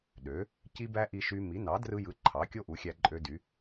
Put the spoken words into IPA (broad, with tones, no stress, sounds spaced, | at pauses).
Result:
ɗ ø˩˥ | c i˦ b æ˦ ʔ i˦ ʃ y˦ m i˩˥ n ɑ˩˥ d r ɯ˦ j ɯ˩˥ ǃʰ ɑ˩˥ kʲ o˦ ʔ u˩˥ xʲ æ˦ ǃʼ ø˦ d y˩˥